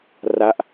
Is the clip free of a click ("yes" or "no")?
yes